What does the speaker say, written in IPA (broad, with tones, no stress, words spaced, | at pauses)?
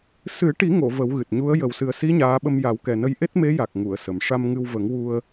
sɨ˨˩˦ʈi˨˩˦ŋo˨˩˨ və˨˩˦wɣɨ˨˩t̚ɲu˧˥ə̯ jə˨˩wsɨ˨˩ə̯si˧˥ ɲaː˧˥ɓə˧m ja˨˩˦wkɛ˨˩nə˧j ʔe˦˥t̚me˧˥ja˨˩k̚ ŋu˨˩˨ə̯sə˨˩m ʂa˧mŋɨ˧w və˨˩˦ŋ wu˧ə̯